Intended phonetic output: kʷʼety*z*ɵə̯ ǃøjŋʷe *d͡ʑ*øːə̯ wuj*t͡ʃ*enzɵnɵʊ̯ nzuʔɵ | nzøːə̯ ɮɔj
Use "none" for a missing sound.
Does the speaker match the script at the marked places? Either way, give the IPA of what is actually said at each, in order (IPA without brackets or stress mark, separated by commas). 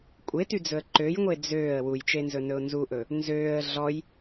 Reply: d͡z, d͡z, t͡ʃ